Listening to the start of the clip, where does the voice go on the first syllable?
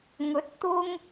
rising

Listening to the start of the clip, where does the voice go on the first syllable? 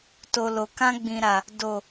low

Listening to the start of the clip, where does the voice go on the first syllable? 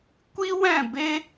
high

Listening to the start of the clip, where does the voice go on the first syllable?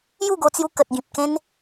falling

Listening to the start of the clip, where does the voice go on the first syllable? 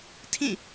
falling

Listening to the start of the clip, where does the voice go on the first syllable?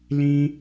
high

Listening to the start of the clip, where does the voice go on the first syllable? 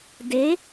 rising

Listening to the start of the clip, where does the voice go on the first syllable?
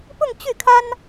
falling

